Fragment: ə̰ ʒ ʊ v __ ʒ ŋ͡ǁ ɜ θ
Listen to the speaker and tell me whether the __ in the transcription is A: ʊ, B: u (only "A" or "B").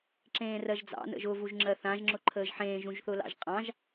B